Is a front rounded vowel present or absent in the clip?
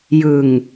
absent